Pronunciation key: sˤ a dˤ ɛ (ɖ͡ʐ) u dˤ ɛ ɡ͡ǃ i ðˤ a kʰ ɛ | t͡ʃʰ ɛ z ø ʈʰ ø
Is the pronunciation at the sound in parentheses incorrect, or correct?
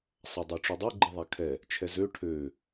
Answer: incorrect